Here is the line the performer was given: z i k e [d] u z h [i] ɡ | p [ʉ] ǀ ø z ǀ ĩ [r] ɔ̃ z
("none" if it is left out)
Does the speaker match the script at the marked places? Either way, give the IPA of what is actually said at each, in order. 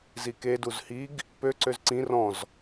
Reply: d, i, ø, r

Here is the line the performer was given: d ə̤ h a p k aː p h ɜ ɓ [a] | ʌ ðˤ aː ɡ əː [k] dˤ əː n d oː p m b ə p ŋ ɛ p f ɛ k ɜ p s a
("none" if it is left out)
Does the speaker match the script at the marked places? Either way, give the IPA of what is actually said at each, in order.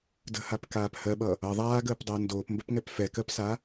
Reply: ʌ, p

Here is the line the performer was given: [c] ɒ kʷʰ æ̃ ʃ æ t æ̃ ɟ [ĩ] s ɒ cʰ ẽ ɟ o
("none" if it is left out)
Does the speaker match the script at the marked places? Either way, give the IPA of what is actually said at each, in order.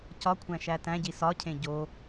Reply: c, i

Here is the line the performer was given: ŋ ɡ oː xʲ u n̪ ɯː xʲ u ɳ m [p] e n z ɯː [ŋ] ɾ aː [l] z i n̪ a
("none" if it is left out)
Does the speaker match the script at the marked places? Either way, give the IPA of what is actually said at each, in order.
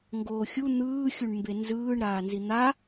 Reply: b, ɳ, n

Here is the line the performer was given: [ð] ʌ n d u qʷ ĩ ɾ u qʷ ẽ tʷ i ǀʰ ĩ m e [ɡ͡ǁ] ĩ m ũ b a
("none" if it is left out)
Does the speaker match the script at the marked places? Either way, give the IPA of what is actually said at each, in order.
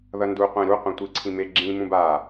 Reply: ð, ɡ͡ǁ

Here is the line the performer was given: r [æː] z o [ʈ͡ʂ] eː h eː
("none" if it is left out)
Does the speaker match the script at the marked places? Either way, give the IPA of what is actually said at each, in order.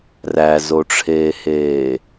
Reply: æ, ʈ͡ʂʰ

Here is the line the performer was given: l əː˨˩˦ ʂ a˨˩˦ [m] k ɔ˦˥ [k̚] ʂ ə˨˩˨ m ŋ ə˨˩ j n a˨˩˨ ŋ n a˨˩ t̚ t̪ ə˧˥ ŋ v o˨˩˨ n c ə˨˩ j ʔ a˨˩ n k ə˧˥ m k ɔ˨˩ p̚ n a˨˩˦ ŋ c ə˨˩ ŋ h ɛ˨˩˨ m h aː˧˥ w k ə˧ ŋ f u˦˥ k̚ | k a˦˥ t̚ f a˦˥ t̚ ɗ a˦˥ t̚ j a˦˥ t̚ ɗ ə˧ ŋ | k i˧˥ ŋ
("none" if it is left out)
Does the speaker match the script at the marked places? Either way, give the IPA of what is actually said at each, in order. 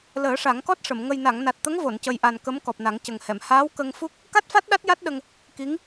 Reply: ŋ, t̚

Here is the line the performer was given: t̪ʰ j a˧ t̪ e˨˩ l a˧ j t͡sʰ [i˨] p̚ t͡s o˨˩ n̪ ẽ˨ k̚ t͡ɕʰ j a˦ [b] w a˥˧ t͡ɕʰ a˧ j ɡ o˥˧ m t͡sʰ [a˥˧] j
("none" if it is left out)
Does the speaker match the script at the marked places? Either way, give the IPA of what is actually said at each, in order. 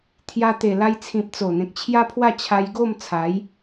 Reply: ĩ˨, pʰ, a˨˦

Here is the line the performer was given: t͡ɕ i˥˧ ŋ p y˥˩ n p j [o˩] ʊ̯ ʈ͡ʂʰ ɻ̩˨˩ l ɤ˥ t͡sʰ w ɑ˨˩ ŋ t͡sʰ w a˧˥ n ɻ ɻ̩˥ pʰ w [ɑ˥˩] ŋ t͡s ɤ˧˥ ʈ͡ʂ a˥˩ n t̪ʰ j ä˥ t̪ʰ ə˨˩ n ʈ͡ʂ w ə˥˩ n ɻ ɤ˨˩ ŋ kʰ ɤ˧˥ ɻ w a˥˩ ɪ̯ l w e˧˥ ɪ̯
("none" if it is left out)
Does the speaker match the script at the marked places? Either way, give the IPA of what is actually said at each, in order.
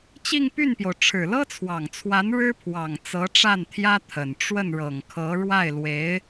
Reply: o˩, ɑ˨˩

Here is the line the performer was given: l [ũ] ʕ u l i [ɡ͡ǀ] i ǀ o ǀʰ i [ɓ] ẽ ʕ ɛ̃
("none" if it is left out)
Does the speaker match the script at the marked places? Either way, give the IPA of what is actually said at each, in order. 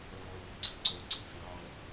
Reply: õ, ɡ͡ǀ, f

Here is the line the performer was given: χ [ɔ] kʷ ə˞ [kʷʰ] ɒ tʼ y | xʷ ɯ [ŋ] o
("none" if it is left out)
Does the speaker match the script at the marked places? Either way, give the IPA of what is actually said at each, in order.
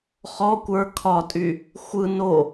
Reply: ɔ, kʰ, n

